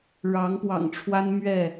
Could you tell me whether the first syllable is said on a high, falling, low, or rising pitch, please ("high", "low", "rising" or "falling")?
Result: rising